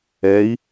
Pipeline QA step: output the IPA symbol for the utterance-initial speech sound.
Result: ɛ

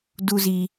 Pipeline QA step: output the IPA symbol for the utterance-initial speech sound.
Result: d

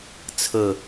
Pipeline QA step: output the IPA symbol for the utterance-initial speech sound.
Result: t͡sʰ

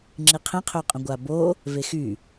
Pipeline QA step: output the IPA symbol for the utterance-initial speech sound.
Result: ŋ͡ǁ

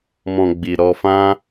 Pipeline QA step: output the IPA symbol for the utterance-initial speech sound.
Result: m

